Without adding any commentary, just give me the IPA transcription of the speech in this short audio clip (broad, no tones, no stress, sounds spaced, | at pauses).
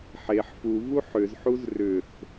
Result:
ħ e ħ f u v u ħ ʏ z ħ u z r ʏ θ